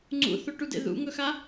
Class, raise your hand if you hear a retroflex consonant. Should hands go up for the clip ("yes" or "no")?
yes